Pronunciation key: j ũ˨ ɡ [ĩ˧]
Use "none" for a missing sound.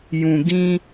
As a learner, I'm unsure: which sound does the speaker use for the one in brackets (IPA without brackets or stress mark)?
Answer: ĩ˧